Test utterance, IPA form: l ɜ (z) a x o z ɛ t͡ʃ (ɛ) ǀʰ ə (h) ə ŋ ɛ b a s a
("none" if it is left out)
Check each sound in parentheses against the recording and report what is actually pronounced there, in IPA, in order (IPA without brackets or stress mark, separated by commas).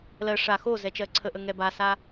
ʂ, ɜ, ʔ